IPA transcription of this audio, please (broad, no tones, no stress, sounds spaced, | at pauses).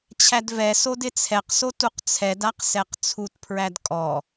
t͡ɕʰ æ d v ɛ s o d ɪ t͡sʰ ɛ q s o t u q t͡sʰ ɛ d a q s ɛ q t͡sʰ u t pʰ ɹ æ d kʼ ɔ